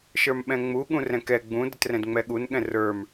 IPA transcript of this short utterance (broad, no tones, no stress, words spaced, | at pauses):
ʃə˞mɓɛ̃ŋ͡mu ɠũrɛ̃kɛ ɡ͡bũ dətrɛ̃dŋ͡mɛɠun ɠɛ̃rə˞m